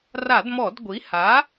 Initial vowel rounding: unrounded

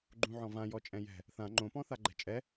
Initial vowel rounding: rounded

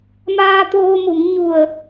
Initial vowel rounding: unrounded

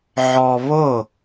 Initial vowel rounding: rounded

